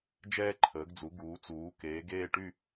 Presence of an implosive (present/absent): absent